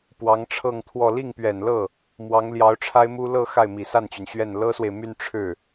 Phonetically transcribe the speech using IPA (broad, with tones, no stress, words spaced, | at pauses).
pwɑ˧˥ŋʈ͡ʂʰɤ˥˧ŋt̪ʰwɔ˥˧ li˥˩ŋpɥɛ˨˩nlɤ˥˩ | mwɑ˧˥ŋ ljɑ˧˥ʊ̯ʈ͡ʂʰa˥ɪ̯mu˥ lɤ˥˧ xa˥˩ɪ̯mi˨˩sa˥˩nt͡ɕy˩n ɕɥɛ˥˩n lɤ˥swe˨ɪ̯ my˥˧n ʈ͡ʂʰɻ̩˥˩